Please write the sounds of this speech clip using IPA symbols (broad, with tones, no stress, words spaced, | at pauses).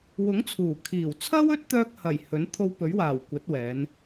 wʊ˨˥ŋt͡sʰuː˨˩kʰiː˨˩wt͡sʰɐ˥w ɵ˥t̚t̪œː˧k̚ hɐ˨˩j hɵ˨˥n t̪ʰo˧wpɵ˨˥ɥwaː˨˩w kʷɐ˨˥t̚wɛː˨˧n